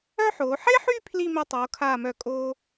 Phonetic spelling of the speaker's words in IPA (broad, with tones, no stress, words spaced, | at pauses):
œ˥ħoː˩˧ ħe˥ħy˥˧ pʰli˥˧ me˧tˤoː˩˧kʰaː˧˩mœ˧˩ kʼoː˧